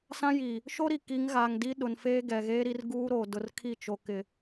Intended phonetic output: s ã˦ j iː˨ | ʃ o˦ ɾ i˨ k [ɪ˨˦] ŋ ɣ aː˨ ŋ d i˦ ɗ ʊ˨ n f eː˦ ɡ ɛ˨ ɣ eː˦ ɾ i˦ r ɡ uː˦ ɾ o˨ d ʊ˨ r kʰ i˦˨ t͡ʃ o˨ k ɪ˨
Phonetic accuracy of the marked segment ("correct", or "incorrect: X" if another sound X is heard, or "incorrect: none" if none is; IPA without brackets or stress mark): incorrect: i˨˦